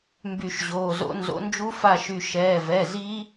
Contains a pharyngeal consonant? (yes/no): no